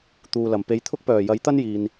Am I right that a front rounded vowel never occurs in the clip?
no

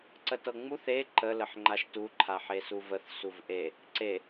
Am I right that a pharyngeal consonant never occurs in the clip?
no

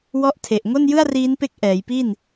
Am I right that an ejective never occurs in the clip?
yes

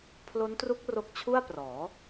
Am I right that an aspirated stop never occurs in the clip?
no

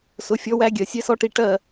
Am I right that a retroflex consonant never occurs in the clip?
no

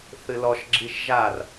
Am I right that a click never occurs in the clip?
no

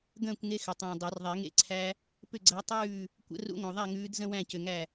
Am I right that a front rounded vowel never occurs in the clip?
no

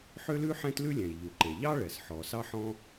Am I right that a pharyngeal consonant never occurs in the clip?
no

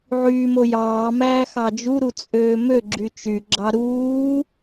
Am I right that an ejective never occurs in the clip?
no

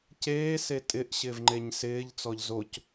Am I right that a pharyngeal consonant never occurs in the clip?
yes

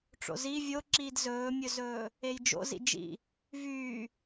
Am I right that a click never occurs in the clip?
no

